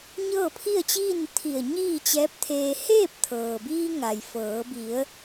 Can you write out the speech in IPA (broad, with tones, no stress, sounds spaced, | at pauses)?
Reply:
ɲ ɤː˥˨ pʰ i˥˨ ə̯ t͡ɕ iː˥˨ n t̪ʰ i˧˩ ə̯ ɲ iː˥˨ t͡ɕ ɛː˧˥ p̚ t̪ʰ eː˧ h eː˥˨ p̚ t̪ʰ ɤː˩ b iː˧ ŋ a˩ j f ɤː˩˧ b i˩˧ ə̯